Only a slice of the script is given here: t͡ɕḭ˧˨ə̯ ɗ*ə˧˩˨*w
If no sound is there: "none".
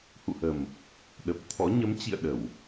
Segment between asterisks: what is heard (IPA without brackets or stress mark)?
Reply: ə˧˩˨